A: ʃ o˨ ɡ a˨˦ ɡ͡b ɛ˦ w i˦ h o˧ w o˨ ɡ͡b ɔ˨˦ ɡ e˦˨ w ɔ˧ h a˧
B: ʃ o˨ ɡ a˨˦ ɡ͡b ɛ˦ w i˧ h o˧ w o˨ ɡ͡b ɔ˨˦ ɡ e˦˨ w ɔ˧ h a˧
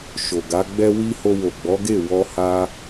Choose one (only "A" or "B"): A